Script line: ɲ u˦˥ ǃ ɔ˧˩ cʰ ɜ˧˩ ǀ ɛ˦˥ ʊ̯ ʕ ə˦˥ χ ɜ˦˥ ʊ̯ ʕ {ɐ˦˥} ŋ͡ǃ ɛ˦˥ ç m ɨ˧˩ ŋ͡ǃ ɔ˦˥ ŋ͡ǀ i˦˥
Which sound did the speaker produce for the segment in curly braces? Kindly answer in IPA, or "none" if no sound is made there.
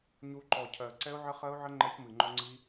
ə˦˥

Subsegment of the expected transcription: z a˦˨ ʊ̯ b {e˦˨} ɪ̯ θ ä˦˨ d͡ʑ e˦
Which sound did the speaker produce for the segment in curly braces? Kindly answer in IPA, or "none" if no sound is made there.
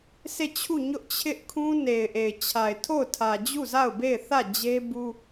e˦˨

